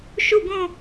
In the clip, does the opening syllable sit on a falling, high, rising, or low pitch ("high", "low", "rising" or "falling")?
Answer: falling